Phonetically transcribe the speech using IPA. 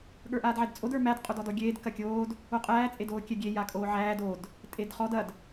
ɠ ə˞ ʔ aː d ʕ ɛ d t͡sʼ o d ə˞ m æ d qʼ o d ɔ d ɔ ɡʲ eː d k ɐ kʲ oː d | o qʼ æː t͡sʼ e d oː kʲ ɛ ɡʲ e j a kʼ oː ʕ æː d o d | tʼ e d χ ɔ d ɐ d

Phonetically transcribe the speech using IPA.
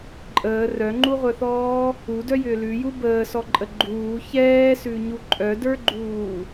ǃʼ əː r œ ŋ͡ǃ u ʁʷ œ θ ɔː | u d œ j ʏː l ʉ j u b əː s ɔ ǃʼ ə ɡ͡ǃ uː ç ɛː s ʉ ɲ u ǃʼ œ d ə˞ ɡ͡ǃ uː

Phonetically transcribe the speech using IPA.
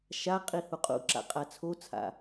ʃ a qʼ i h u qʼ ṵ ǁ a̰ qʼ a t͡sʰ o t͡sʰ a̰

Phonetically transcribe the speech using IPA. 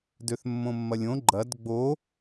d ø θ mː õ mː ɐ lʲ õ ɡ͡ǃ ɐ d ɡ͡b o

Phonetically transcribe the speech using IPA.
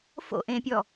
f o̰ ʔ ẽ pʲ ɔ

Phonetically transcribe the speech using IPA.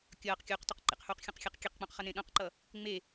kʲ ʌː q kʲ uː q t u q ǃ ḛ q h uː q xʲ õ q xʲ ɛ q kʲ e q k͡p ũ q χ ʌ n ẽ ɗ õ q ǃ ʌ | ŋ͡m e

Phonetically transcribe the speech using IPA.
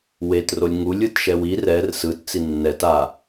w e t r o lʲ ŋ u lʲ ɯ t ʃ ɛ w i r ɛ r s ɯ t t͡s i nː ɛ t a

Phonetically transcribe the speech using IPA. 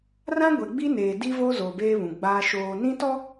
r ã˦ ɡʷ ɛ˨ ɡ͡b i˦ n eː˨ d i˦ v o˦ z o˨ b eː˦ β ũ˨ ɡ͡b aː˦ ʃ oː˨ n ĩ˦ t ɔ˦

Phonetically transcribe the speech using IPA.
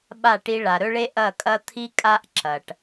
ɓ a˦˨ ʈ i˧ ɭ a˨ ɾ ɵ˦ ɭ e˦ ʔ ɐ˦˨ kʼ ɐ˦ t̪ʰ i˦ kʼ a˦ ʔ ǁ ɐ˨ ʈ

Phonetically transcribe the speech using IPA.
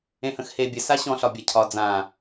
ẽ h ə̃ x h e bʲ ə s a ɕ ɔ̃ ɬ ɒ bʲ a cʰ ɒ d͡z ã

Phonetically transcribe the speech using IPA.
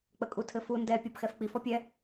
k͡p ə kʼ u tʰ ɘ f u n d ɛ pʲ ɔ b x ɛ f k͡p i f ɔ pʲ ɛ

